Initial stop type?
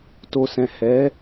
plain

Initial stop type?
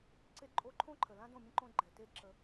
click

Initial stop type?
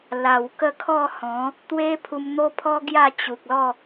plain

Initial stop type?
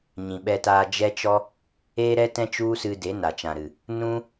implosive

